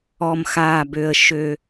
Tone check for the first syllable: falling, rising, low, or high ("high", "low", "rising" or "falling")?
low